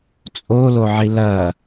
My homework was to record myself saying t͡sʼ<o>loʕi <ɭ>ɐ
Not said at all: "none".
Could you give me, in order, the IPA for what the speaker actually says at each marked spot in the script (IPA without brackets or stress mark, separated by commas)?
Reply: o, l